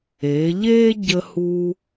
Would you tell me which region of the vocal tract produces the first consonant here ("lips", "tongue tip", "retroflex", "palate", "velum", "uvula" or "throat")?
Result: palate